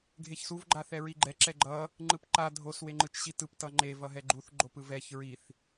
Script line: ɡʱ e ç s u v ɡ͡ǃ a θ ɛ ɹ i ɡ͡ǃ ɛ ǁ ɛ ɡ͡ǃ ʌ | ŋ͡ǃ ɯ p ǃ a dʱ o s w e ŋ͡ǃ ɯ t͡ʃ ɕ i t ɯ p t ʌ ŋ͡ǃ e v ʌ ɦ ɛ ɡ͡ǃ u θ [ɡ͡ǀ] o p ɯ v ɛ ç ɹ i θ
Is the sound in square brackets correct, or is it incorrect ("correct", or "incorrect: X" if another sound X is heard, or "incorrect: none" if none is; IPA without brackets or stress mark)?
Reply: incorrect: ɡ͡ǃ